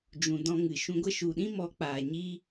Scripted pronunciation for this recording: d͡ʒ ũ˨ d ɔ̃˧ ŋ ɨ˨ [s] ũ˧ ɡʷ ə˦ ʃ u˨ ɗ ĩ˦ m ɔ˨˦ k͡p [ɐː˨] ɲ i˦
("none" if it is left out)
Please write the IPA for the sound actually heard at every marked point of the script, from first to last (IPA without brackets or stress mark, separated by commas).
ʃ, aː˨